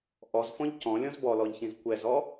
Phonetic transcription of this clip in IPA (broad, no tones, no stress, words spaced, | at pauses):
ʔɔzfɔ̃ʎ cɔ̃lʲɔ̃z bɔlɔʎçĩz kʷɛzɔ